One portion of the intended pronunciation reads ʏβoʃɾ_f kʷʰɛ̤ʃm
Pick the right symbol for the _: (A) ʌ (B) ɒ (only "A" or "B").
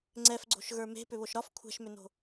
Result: B